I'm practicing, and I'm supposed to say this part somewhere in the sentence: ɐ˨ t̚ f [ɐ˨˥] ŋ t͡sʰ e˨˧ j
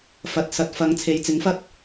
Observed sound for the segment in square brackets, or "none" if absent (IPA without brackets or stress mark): ɐ˨˧